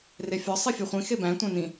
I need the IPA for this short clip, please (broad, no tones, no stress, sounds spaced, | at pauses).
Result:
r e fʲ ɒ sˤ i fʲ e χʷ ĩ x e b æ̃ tʷ æ̃ n ĩ